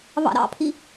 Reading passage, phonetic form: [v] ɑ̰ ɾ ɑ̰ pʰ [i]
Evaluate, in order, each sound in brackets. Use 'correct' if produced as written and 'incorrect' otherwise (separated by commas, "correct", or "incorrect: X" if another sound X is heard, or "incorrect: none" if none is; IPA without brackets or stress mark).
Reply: correct, correct